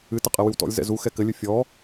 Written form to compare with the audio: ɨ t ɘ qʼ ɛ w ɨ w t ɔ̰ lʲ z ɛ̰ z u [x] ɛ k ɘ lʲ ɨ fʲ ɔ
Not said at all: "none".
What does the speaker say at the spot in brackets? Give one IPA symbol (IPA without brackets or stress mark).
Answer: x